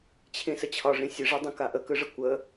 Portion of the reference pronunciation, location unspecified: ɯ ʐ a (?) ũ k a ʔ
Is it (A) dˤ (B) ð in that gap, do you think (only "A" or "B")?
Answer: A